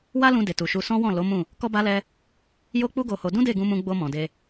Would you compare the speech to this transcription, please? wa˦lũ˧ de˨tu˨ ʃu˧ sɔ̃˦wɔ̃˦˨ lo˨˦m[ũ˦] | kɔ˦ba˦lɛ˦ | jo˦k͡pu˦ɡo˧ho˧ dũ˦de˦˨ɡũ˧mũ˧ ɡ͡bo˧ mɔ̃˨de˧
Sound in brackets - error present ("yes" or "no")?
yes